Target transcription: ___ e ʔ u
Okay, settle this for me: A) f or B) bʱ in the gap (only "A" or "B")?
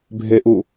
B